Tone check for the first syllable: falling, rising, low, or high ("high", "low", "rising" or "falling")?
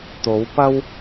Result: rising